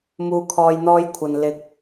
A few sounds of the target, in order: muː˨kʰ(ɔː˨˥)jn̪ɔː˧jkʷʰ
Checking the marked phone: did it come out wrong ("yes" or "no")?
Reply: yes